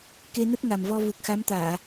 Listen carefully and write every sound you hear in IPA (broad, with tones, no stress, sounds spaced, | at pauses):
k e˧ n ə˦˥ t̚ ŋ a˨˩ m v ɔ˧ v u˨˩ k̚ x a˨˦ m t̪ aː˧˩˨